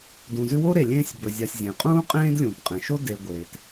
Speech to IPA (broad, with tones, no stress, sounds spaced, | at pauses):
d ũ˨ z ʉ˦ w o˥ ɾ e˨ lʲ ẽː˥ sʲ b ɵ˨ zʲ a˨ sʲ zʲ ẽ˩ qʼ ũː˥ qʼ ẽː˥ d lʲ ũː˩ t qʼ ẽ˩ ʃ o˥ d e˨ ɡʷ e˩ t